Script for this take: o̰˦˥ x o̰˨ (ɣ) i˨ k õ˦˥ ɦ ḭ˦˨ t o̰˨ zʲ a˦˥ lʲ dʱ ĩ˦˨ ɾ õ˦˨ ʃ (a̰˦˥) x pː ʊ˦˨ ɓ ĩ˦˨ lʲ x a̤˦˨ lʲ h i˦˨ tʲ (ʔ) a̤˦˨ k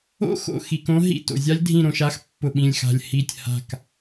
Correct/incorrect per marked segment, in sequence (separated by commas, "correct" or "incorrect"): incorrect, incorrect, incorrect